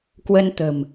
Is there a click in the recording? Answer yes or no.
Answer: no